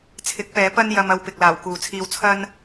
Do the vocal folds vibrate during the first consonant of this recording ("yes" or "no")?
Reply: no